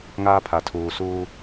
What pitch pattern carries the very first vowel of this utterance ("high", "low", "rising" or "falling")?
high